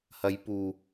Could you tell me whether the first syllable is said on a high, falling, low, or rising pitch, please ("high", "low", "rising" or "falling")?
rising